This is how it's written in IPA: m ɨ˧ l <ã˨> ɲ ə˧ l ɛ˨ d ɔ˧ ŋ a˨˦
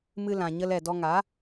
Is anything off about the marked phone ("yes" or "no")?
no